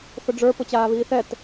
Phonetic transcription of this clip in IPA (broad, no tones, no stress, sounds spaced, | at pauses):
θ ʊ ɖ͡ʐ ə˞ p ʊ t͡ɕ aː β iː θ ɛ t